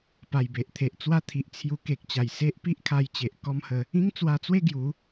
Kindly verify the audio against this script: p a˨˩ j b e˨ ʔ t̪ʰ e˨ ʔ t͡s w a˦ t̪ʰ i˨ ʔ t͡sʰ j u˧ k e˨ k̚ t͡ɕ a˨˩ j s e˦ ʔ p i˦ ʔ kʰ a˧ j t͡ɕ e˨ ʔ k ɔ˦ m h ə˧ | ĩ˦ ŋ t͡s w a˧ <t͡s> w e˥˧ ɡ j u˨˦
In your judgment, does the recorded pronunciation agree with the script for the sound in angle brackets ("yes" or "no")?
yes